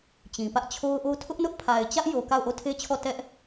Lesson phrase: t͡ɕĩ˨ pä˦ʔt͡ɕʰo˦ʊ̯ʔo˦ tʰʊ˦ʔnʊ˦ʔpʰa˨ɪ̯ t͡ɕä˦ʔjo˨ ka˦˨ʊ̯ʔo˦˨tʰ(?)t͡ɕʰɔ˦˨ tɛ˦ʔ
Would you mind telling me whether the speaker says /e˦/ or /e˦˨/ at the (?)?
e˦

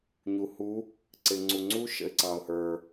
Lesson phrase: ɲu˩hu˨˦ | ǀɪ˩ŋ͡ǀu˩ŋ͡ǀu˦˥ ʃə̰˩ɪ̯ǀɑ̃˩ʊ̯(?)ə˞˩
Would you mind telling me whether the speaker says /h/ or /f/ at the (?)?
h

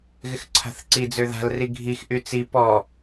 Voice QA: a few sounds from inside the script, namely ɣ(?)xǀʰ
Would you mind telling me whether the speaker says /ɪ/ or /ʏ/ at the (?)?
ɪ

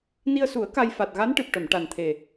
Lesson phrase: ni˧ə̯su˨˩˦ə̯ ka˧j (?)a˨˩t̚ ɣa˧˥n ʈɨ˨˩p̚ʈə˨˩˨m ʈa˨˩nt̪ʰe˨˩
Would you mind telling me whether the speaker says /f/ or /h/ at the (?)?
f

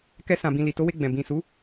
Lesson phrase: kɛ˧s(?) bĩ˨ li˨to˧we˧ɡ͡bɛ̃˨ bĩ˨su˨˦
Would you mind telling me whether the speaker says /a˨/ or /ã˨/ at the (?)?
ã˨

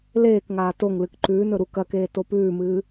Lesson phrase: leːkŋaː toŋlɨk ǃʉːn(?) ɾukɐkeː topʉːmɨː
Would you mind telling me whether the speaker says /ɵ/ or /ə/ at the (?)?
ɵ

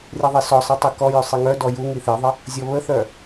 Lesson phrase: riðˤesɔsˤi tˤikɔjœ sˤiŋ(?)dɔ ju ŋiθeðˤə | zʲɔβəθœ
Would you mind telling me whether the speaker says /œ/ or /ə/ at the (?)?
œ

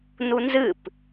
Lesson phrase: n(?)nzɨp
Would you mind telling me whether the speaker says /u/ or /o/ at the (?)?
u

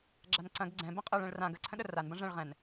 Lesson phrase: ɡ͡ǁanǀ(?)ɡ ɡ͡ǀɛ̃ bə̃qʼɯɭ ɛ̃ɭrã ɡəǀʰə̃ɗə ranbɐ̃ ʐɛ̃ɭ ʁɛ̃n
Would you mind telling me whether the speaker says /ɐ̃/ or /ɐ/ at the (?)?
ɐ̃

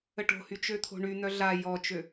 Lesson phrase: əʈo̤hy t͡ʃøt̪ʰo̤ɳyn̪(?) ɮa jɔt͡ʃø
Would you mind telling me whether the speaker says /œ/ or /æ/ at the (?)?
œ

